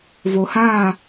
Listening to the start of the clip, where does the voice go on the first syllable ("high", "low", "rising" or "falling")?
low